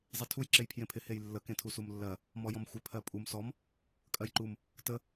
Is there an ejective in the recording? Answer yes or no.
yes